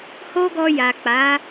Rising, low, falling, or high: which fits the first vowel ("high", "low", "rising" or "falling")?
high